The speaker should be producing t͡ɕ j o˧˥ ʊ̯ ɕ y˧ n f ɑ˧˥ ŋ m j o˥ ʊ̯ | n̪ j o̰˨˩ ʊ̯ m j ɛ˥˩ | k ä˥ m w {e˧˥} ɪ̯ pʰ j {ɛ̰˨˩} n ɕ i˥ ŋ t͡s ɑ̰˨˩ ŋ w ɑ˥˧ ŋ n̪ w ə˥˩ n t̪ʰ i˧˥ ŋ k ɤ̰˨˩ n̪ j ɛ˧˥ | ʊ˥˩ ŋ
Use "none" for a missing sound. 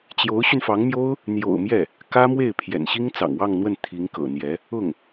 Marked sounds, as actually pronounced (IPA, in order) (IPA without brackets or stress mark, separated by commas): e˥˩, ɛ̰˨˩